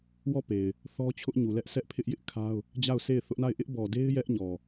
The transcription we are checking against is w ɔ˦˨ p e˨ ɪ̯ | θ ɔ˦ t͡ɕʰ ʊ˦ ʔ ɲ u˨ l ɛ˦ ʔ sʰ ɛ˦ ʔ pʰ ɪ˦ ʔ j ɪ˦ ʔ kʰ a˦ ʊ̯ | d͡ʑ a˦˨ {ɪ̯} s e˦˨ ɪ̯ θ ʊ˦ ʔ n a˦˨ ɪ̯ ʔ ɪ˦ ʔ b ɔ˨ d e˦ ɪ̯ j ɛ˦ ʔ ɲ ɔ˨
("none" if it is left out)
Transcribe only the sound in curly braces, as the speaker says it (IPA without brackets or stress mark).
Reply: ʊ̯